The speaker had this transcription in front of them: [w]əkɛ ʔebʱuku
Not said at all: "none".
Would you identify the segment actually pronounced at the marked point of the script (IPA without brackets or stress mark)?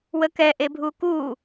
w